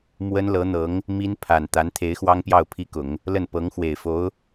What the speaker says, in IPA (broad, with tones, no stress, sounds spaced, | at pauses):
m w ə˥ n l ɤ˧˥ n̪ ɤ˧˥ ŋ | m i˥ n pʰ a˨˩ n t̪ a˧˥ n t̪ʰ e˧˥ ɪ̯ x w ɑ˥ ŋ p j ɑ˥˩ ʊ̯ pʰ i˥ k ʊ˨˩˦ ŋ | l ə˥˩ n p ɤ˧˥ ŋ x w e˨˩ ɪ̯ f o˧˥ ʊ̯